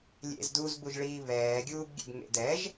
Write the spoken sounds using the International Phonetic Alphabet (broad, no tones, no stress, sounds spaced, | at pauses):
lʲ ḛ z d uː z b u ʒ ɭ iː β ɛː ɡʲ uː b ɡʲ ḛ b ŋ ḛ d ɛ ʒ